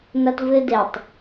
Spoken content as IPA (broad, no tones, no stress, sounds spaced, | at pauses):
n ɐ t v ɨ d e tˤ